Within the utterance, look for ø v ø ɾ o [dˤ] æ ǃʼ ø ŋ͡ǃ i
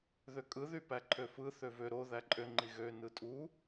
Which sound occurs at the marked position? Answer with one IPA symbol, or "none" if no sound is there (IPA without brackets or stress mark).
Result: ð